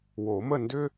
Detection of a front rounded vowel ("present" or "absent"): present